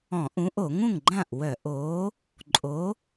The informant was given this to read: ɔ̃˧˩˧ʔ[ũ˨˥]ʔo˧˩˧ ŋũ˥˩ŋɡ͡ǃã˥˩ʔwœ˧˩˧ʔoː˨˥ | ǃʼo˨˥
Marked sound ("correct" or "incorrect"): correct